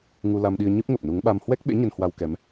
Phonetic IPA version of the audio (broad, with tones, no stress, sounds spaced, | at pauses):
ŋ u˧ l a˧ m ɗ i˧ ə̯ ɲ ɨ˦˥ p̚ ŋ ə˨˩ p̚ n u˨˦ ŋ ɓ a˧ m h w ɛ˦˥ k̚ ɓ ḛ˧˥ ɲ ə˧ n h w a˧ w k ɛ˨˦ m